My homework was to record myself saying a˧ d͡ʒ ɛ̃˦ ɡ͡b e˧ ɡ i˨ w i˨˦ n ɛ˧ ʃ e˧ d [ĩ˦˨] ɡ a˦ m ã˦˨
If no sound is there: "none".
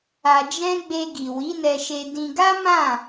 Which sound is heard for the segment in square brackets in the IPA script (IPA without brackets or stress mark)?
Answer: ĩ˧